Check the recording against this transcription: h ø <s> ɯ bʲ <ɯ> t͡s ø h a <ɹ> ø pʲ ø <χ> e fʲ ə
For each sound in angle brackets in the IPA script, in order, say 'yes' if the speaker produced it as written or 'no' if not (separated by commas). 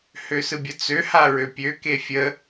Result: yes, no, yes, no